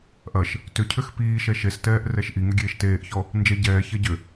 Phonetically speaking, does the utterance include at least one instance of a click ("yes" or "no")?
no